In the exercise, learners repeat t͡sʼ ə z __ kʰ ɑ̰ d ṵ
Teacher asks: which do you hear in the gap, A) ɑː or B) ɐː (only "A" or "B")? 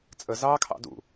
A